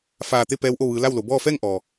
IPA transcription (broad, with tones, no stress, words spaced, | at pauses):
faː˧˩t̪e˥˨ pɛː˧˥wʔo˥˨ ʋɯː˩˧ la˥˨wlo˩˧ bɔː˥˨ fɛː˥˨ŋʔɔː˩